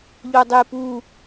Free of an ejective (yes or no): yes